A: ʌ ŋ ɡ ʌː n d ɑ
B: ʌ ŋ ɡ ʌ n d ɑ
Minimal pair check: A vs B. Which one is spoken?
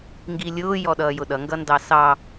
B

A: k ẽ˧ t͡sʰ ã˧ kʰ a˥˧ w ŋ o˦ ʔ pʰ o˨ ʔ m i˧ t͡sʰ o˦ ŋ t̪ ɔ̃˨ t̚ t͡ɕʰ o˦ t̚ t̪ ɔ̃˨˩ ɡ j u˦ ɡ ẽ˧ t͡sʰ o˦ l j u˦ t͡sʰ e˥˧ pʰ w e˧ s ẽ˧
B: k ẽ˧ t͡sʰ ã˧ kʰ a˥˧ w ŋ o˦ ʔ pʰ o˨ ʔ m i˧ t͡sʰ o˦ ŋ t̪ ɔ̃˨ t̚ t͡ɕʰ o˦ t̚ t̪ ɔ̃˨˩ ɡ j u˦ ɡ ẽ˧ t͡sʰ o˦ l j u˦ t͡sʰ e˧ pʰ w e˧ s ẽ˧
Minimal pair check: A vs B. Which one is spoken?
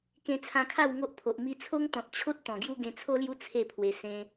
B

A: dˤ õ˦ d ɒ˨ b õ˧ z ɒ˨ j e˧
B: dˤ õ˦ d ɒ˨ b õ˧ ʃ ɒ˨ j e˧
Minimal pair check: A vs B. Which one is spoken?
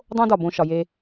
B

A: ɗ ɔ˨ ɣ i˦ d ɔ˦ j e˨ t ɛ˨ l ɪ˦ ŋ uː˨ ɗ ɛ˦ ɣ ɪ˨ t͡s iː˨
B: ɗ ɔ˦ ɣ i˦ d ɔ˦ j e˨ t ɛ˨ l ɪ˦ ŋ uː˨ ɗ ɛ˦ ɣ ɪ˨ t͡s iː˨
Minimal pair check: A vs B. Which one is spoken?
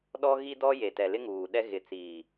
B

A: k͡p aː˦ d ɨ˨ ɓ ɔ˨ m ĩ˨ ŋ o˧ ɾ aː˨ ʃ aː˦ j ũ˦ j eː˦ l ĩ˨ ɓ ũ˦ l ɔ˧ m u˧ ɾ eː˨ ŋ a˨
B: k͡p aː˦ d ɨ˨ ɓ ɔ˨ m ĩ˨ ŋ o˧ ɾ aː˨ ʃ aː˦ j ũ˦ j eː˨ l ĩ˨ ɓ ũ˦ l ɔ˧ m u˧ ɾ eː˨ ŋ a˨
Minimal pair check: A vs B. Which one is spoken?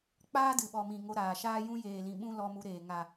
B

